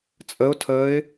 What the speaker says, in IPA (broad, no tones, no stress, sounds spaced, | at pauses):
t͡sʼ ə ʊ̯ tʰ əː ɪ̯